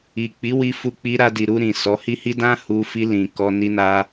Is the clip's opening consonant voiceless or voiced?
voiceless